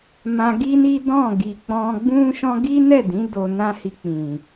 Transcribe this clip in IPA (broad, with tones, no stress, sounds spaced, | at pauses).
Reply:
m ã˧ ɡ i˦ n i˦ d ɔ̃˦˨ ɡ i˨ k͡p ɔ̃˧ ɡ͡b ũ˦ ʃ ɔ̃˦ ɡ i˦ n ɛ˦˨ d ĩ˨˦ d o˧ n ã˦ h i˧ k͡p ĩ˨